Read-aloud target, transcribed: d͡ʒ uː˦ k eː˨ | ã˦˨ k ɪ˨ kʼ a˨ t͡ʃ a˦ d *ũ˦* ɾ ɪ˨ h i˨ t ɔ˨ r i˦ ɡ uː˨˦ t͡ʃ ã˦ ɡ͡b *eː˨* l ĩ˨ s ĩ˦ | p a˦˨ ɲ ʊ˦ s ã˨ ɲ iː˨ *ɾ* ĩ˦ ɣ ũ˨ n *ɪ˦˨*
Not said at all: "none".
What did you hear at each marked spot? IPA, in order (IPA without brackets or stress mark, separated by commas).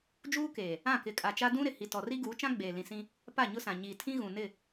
ũ˦, eː˨, tʰ, ɪ˦˨